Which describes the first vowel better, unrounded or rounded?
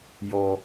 rounded